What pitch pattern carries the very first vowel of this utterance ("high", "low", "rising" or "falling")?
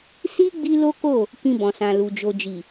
high